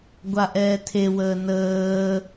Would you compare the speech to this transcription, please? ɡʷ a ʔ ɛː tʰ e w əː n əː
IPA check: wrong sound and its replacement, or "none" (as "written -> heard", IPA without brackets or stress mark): none